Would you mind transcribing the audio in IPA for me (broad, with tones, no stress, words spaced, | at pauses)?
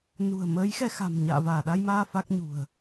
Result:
nṳ˨˩ə̯ məː˨˦jxɛ˧xa̤˨˩m ɲa̰ː˧˨vaː˧˩ɗa˧jmaː˧ fa˦˥k̚ɲṳ˨˩ə̯